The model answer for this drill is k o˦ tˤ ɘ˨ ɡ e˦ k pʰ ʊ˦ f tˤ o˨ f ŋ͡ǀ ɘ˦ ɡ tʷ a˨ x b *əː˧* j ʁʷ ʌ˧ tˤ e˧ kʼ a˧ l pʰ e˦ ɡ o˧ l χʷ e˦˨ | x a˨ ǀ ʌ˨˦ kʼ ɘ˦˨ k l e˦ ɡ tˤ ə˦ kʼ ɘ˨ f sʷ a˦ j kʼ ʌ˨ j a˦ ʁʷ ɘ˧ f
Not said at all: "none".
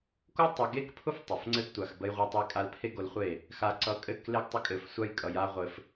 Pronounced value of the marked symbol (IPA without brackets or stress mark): ə˧